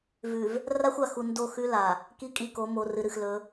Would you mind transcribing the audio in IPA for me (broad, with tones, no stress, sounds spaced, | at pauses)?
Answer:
v ʉ˨ v | r a˦ xʷ a˨ x u˨ n d o˦˨ x ʉ˦ l a˨ | k i˦˨ kʼ i˦˨ k o˨˦ m o˨ r ɨ˨ ɾ ɨ˨ x l ɵ˨˦